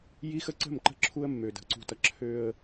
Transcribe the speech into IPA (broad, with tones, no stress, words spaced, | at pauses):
ji˦xə˦ǀə̤˦˨mǃə̤˦ ǁʰu˦ə̯mːø˨də̤˨ ǀṳ˨tʌ˨ ǁʰø˦ə̯